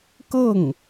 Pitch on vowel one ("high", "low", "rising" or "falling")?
falling